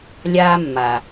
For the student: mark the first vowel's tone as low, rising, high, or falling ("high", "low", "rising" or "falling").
high